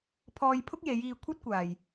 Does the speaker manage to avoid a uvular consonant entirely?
yes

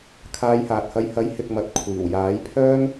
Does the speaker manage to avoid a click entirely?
yes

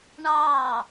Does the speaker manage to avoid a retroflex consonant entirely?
no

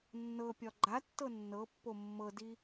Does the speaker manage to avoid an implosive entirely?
yes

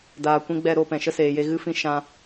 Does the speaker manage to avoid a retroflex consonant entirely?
yes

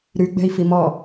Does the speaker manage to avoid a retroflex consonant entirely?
yes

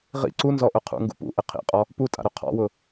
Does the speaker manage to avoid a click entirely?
no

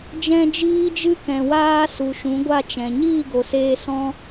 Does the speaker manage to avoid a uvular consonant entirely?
yes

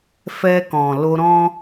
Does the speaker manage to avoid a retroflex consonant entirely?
yes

